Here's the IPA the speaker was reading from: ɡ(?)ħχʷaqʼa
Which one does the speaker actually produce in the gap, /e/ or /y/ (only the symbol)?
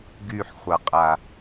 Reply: y